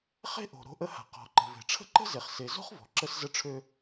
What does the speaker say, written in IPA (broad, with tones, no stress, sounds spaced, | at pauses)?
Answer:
χ e̤˦ ʔ o̤˩ ɾ o̤˦ ʔ ə˦ h a̤˩ q ɔ̤˨ ǃ ə̤˨ v e̤˩ ʈ͡ʂʰ ə̤˥ ǃ ə̤˥ z e˨ χ s e˨ z o̤˥ χ v ɔ̤˩ ǁ ə˦ s z ə˦ ʈ͡ʂʰ ø˦